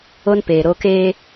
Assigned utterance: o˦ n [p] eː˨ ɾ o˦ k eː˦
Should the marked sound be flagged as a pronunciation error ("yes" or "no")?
no